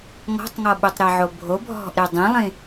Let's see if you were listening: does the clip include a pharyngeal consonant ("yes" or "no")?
yes